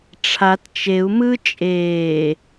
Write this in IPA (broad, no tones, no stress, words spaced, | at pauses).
ʈ͡ʂʰat t͡ʃeu̯ mɯ t͡ʃʼeː